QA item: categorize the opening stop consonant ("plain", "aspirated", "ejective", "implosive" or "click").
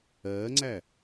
click